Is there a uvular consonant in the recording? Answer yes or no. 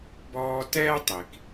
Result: no